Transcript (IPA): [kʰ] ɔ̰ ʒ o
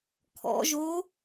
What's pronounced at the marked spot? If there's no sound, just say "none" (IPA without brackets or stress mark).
kʰ